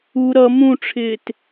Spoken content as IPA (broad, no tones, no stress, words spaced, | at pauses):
u ɾʌ mũʈ͡ʂʰɪːt